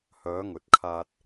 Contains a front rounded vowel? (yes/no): yes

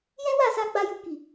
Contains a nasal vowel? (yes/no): yes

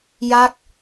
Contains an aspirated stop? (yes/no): no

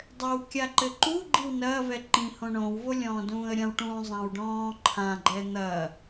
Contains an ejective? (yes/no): no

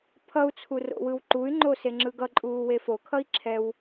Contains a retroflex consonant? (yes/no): no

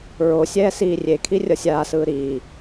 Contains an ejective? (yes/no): no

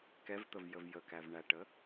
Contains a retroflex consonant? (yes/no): yes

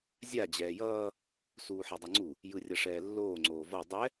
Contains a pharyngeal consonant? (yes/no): yes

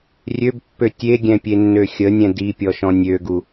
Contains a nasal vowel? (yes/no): yes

